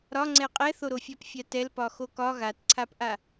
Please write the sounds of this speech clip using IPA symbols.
ɾ ɒ ŋ͡ǀ ɛ qʼ ɛ θ o ɾ o fʲ a p fʲ a t ɛ l p ɒ x o k ɒ ɣ a t ǀʰ a p ʔ a

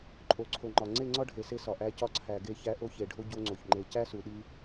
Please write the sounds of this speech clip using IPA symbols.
ǃʼ o˨ ǀʰ o˨ ŋ͡ǃ ɒ˨ ŋ͡ǀ e˦˨ ŋ͡ǀ ɒ˦ ɖʱ e˨ s e˦ s ɒ˨ ʔ æ˦ c ɒ˦ ǀʰ æ˨ ɡ e˦˨ ç æ˦ ʔ o˦ ç e˨ ɖʱ o˦ ɟ o˦ ŋ͡ǀ o˨ ç ŋ͡ǃ e˨ c æ˦ s u˨ ɗ i˦

